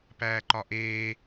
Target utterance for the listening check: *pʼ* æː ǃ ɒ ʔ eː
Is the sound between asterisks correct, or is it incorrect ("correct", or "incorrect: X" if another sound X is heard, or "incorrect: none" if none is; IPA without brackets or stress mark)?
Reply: incorrect: p